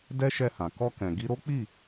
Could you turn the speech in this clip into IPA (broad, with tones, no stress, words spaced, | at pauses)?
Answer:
dɛ˦ ʃɛ˧hã˨ kɔ˧kɛ̃˨ ɡi˧ɾo˦k͡pi˦˨